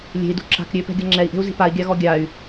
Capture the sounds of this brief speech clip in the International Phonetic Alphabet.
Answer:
lʲe̤i̯dṳ ǁa̤k ɾʲøpɛ̤ ɡʲʌŋ͡ǁɛi̯ʔe̤u̯zi̤ pai̯ɡʲaɣɔ ɡʲay̯

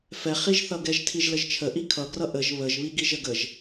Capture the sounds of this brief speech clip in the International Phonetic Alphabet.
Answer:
fɛχiʒθʌ ɡɛʒtʰiʒləʒt͡ʃʰə ʔikʰʌɡrʌ ʔəʒ βəʒβiɡiʒ əɡəʒ

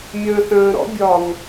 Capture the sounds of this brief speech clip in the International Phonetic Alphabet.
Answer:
mʲə̃ːθə̃ː ɾɔ̰bʲɒŋ

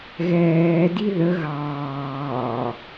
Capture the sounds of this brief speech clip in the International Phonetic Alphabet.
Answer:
ɣɛːdi ðə ɣɑː

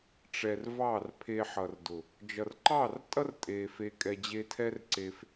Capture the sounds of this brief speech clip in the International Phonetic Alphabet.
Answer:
ʈ͡ʂɛ˨r vɑː˦˨rpʰe˧ħʌ˨rdʊ˨ | d͡ʒʌ˨rǃɑː˦˨rtʼʌ˦r tʼeː˧fe˦ kʼɛ˧d͡ʑe˦ tʰɛ˦rǀeː˧f

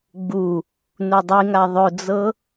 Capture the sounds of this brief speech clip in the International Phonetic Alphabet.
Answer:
ɡ͡bu | nudˤiŋa ðˤɵd͡zɤ

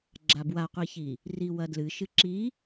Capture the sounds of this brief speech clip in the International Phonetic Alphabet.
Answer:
ɡ͡ǁabwaqʷiçi | riwɐdlɨ ʃɨǁi

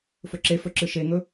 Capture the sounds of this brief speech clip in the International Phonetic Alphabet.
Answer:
fɵǁefɵ ǁɨʃeŋɵ

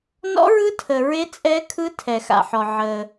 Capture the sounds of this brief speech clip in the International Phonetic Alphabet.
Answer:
nɔ̰˦˥ɹɯ˦˥ tʰə˨ɹe˦˥ t͡sʼɛ˦˥kʰɯ˦˥ tʰɛ˨xa̰˨ħɔ˨ ʕə˨

